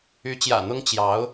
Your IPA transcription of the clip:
y˧˥t͡ɕjä̰˨˩ n̪ʊ˥ŋ t͡ɕjɑ˧˥ʊ̯

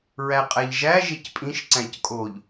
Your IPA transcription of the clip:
ɹæqʼæʎʒæ ʒecpʼĩʃ ǀæ̃ckʼoʎ

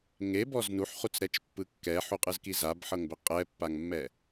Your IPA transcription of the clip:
ŋebɔz nuħχut͡sɾɛt͡ʃpːɯ kːɛħuqʼɯzki zabħɤŋbɛ qʼɛpːaŋmːɛ

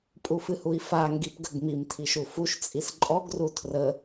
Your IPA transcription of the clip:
pʼufɨhui̯fa ŋɡipɡəɡmim tʰiʃufuʃ t͡sʼisǃʼɔɡ rutʰrə

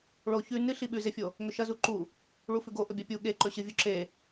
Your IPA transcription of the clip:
ɭo çʉ nɨ ɬiɓʉzefʲo | ŋɵʃɐzu ǃu | ɭufʉɡo ʔɵbʲapʲu ɠe ǃɵɕɨvʲu ǁe

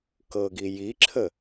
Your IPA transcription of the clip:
kɤɡi jiǁʰə

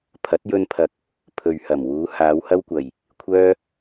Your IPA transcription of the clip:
pʰɐ˨˥t̚jɵ˧npʰɐ˨k̚ | pʰɵ˨ɥhɐ˨˩mwuː˨˧ haː˨˧whɐ˥wkʷɐ˨˩j | kʷʰœː˥

